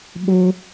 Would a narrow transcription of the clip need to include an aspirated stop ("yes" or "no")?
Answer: no